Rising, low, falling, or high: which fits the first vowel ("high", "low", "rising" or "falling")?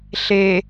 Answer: low